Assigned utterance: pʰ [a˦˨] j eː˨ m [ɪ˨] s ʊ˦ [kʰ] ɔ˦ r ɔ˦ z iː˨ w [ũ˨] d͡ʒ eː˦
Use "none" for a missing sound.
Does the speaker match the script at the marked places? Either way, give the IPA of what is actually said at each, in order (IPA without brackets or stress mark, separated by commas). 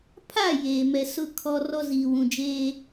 a˦˨, ɛ˨, kʰ, ũ˨